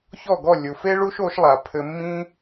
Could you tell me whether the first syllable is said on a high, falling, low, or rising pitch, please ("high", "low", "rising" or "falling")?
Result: falling